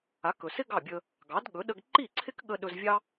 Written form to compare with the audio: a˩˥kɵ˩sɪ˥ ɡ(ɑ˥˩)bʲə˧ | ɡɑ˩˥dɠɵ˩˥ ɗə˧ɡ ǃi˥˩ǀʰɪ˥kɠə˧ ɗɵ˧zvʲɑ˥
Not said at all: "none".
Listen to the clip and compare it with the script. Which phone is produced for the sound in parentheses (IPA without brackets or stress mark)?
ɑ˥˩